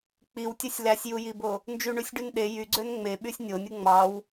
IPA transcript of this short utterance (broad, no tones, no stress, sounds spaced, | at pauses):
k͡p i w tʲ ø sʲ l æ sʲ j u j i b o | n d͡ʒ y ɳ y sʲ ɖ y n ɗ e j y ɡ͡ǀ ø n ŋ͡m e ɓ y sʲ nʲ o nʲ ɯ ŋ͡m ɑ w